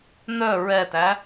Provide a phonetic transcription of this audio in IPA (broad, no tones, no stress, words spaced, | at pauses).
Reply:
nœ ɹɛtæ